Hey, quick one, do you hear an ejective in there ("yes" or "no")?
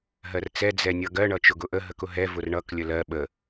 no